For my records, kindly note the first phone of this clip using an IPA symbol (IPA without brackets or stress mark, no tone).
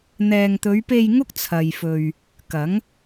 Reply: n̪